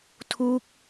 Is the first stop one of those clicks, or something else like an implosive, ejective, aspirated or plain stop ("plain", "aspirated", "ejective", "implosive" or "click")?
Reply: aspirated